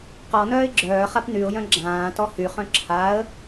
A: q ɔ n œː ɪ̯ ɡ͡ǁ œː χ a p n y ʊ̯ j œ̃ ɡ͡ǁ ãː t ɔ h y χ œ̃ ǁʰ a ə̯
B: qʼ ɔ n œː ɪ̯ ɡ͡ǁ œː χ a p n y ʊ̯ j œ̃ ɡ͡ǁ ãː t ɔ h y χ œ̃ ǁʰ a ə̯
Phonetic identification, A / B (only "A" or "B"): A